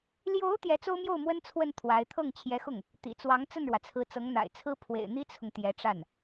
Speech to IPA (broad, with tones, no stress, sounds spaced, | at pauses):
l j o˧˥ ʊ̯ t̪ j ɛ˧˥ t͡s o˥ ʊ̯ m j o˥˩ ʊ̯ m w ə˥ n t͡sʰ w ə˥˩ n t̪ʰ w a˧˥ ɪ̯ t̪ʰ ɤ˥˩ ŋ t͡ɕʰ j ɛ˧˥ x ʊ˥˩ ŋ | t̪ ḭ˨˩ t͡s w ɑ˧˥ ŋ t͡s ə˥˩ n ɻ w ä˩ t͡sʰ ɹ̩˧˥ t͡s ɤ˧˥ ŋ n̪ a̰˨˩ ɪ̯ t͡sʰ ɹ̩˥ pʰ w ḛ˨˩ ɪ̯ n̪ i˥ t͡sʰ ʊ˨ ŋ t̪ j ɛ˧˥ ʈ͡ʂ a˥˩ n